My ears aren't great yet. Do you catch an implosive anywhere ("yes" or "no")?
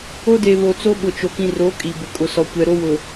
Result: yes